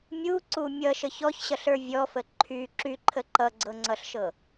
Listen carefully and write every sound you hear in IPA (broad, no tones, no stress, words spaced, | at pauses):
mʲuǀu mʲʌʃə çɔçɕʌɬə˞ vʲɔfə ǃʰy ǁyǃʰə ǃʌɡ͡ǀɤŋ͡ǀʌɬʃɤ